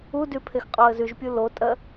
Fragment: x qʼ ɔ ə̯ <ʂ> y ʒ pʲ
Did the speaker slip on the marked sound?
yes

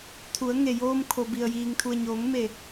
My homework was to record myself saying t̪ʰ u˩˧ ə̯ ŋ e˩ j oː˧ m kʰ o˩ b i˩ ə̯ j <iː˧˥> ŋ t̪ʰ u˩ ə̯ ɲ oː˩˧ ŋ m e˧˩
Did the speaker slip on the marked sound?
yes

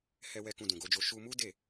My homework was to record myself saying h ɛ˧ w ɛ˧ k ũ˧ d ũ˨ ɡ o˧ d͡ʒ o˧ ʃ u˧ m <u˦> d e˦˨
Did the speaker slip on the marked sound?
no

